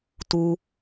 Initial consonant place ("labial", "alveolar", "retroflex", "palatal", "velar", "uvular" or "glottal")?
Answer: alveolar